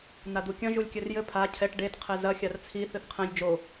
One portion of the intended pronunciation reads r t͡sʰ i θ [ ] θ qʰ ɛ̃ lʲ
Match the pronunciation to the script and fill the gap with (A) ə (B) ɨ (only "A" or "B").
B